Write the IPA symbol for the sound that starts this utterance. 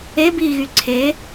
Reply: e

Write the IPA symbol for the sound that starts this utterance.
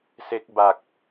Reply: s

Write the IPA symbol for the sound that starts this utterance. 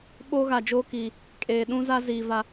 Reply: ɓ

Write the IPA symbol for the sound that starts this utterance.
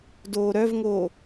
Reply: d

